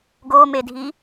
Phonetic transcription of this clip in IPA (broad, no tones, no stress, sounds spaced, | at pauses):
ɡ o m e dʱ i